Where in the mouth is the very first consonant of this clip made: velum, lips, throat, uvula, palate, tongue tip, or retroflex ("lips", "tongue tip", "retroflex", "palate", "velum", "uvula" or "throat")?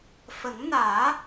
lips